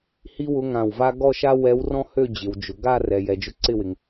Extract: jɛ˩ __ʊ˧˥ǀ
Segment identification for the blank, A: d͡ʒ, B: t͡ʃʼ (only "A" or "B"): A